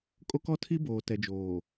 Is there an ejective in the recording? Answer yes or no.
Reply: yes